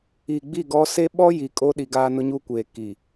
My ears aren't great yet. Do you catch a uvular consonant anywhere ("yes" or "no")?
no